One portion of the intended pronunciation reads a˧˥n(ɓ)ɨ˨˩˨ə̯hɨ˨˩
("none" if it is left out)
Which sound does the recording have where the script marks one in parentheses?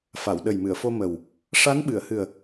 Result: ɓ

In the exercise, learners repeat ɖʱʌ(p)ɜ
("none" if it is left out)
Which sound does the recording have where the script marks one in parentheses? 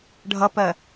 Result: p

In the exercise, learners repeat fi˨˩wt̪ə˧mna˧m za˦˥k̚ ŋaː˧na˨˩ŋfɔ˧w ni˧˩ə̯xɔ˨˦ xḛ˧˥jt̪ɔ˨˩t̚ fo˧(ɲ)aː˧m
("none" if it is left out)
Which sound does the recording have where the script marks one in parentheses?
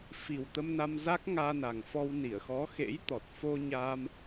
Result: ɲ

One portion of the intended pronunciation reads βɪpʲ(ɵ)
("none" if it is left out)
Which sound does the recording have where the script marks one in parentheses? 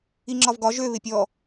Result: ɔ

